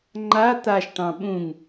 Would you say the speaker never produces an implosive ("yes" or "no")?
no